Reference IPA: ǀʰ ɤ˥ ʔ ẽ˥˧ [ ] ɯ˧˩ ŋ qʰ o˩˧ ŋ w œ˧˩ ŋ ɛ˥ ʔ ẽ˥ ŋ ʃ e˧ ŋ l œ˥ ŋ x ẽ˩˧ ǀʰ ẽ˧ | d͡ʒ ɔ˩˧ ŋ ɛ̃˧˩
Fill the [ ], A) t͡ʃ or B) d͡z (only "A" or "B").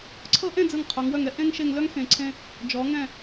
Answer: B